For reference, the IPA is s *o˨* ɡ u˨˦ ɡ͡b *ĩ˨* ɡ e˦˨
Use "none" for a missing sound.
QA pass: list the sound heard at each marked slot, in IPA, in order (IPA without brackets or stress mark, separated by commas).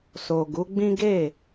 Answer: o˨, ĩ˦